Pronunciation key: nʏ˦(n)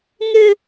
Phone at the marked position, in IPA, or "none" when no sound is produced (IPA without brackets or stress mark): none